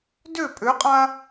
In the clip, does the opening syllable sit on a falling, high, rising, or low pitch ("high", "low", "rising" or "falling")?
falling